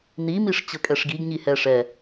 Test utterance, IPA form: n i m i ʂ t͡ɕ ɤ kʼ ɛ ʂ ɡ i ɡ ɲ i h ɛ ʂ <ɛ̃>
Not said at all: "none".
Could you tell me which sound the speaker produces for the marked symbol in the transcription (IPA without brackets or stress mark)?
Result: ɛ